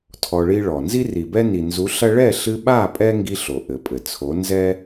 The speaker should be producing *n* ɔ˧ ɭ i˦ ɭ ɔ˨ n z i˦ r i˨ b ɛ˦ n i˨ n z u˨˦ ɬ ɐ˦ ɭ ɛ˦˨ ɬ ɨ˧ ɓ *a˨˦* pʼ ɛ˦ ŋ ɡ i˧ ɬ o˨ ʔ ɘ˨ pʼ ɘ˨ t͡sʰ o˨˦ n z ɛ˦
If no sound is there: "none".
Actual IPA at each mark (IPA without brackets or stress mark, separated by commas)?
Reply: tʰ, a˦˨